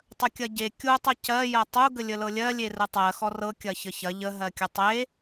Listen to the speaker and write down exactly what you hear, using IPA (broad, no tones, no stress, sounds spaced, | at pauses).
tˤ ə kʲ ɐ ɟ e kʲ u tˤ ɤ c ɜ j ɐ tˤ u ɡ ə lʲ ə l ɤ lʲ ɜ lʲ e r ə tˤ ɜ x ɔ r ɤ kʲ ɐ ç ə ç ɐ ʎ ə ɦ ɜ kʲ ə tˤ e